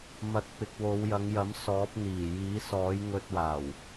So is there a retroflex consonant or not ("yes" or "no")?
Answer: no